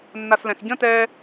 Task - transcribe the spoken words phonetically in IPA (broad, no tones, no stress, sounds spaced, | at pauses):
nː a s l ɛ̃ x ɟ ə̃ t ɛː